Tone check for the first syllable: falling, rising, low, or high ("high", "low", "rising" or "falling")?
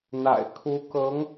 low